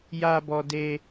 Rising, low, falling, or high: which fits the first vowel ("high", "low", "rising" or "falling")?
high